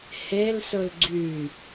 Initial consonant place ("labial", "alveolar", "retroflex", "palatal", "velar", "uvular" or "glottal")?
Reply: glottal